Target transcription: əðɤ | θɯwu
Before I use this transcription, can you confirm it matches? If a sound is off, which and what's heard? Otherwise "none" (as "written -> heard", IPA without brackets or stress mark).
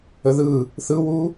ɤ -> ɯ